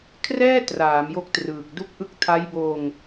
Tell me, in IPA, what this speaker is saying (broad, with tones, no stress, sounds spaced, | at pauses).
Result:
kʰ r ɛː˥˩ t r aː˩˦ m j o˦˥ k̚ t r ɯː˨˩ k̚ d u˦˥ k̚ ʔ ɯ˦˥ k̚ tʰ a˦˥ j b oː˧ ŋ